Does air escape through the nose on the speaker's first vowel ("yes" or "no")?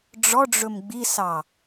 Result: no